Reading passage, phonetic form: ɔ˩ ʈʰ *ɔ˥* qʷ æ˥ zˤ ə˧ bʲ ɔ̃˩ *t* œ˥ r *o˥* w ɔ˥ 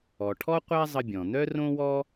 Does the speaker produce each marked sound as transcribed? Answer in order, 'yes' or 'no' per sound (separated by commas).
yes, no, no